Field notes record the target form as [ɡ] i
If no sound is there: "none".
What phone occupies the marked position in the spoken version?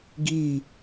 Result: ɡ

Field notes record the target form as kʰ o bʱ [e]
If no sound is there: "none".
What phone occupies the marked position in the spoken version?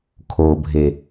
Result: e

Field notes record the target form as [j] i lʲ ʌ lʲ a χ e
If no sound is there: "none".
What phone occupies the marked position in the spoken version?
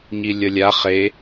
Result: ɲ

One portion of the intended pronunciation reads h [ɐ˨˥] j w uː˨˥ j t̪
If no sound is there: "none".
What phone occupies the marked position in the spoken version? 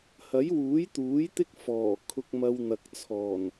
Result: ɐ˨˥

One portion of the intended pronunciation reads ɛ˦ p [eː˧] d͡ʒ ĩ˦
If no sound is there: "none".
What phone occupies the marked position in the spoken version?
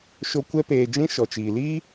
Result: eː˧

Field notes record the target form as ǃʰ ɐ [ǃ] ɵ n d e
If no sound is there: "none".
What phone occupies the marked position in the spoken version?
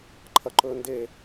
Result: ǃ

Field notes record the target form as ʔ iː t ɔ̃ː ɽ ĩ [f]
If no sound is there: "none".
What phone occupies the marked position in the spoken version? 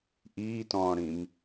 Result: m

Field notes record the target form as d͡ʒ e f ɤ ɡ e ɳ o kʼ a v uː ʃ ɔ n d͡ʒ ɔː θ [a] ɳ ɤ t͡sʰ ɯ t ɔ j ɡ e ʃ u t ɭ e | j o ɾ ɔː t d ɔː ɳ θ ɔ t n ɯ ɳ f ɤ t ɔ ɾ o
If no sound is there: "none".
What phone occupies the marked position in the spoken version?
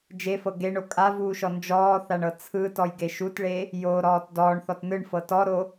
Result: a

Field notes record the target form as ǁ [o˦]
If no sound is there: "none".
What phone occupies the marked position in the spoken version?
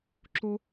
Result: o˦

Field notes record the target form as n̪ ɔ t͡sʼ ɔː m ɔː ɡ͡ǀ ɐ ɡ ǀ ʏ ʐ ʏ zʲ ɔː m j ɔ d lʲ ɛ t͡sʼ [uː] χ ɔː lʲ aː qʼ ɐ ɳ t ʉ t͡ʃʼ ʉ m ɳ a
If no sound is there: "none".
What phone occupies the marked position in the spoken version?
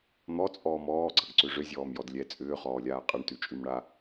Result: ʏː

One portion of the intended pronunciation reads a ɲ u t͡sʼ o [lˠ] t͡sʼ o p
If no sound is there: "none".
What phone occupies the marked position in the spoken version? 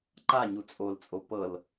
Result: l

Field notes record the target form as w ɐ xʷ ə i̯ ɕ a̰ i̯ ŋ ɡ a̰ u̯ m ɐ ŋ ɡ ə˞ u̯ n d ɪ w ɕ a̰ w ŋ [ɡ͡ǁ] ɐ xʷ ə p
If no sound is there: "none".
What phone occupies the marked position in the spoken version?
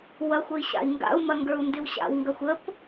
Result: ɡ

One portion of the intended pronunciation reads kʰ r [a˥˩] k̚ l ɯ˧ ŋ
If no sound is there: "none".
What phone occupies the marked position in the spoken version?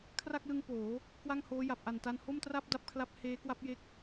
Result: a˥˩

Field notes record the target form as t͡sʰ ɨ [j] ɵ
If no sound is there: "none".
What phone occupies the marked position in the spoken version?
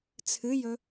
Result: j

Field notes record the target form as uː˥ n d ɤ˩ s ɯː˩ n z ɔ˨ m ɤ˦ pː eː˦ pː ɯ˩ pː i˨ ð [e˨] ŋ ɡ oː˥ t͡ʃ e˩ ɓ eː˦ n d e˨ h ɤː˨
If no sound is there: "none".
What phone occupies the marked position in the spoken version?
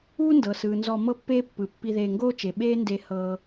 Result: eː˨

